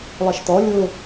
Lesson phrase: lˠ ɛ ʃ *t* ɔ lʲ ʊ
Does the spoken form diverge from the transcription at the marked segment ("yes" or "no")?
no